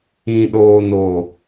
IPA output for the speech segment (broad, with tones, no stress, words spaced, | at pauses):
ĩ˨ɗoː˨no˨